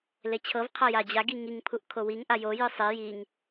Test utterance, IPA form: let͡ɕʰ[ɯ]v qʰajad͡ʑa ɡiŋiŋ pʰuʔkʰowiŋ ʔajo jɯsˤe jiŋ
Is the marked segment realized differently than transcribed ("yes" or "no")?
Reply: yes